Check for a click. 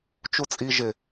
absent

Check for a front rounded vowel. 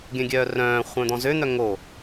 present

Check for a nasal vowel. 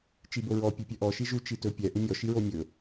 absent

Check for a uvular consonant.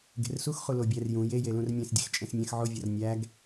present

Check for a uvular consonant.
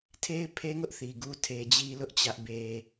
absent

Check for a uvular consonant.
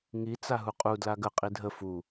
present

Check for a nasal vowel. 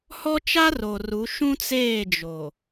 present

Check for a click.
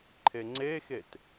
present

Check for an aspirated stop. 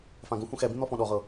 absent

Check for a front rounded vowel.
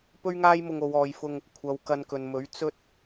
absent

